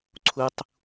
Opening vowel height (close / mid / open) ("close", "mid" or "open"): close